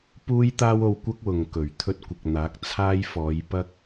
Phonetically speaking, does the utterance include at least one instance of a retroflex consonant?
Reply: no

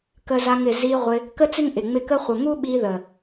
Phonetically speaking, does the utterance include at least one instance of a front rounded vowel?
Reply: no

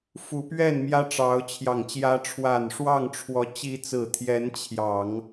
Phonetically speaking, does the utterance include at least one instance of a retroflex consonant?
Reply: yes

